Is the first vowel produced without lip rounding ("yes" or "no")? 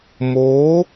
no